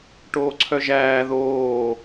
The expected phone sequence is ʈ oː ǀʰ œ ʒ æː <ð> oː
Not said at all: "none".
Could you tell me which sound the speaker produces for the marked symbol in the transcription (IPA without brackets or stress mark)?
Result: ð